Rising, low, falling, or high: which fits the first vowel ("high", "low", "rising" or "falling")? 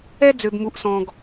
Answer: high